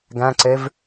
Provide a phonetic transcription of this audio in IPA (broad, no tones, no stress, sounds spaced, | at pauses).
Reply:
ɡ æ̃ ǀ e v